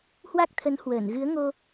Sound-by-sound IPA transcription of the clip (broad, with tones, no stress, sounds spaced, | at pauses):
h w a˦˥ k̚ t̪ʰ ə˨˦ n h w əː˧˩ n ɣ ɨ˨˦ ə̯ ŋ o˧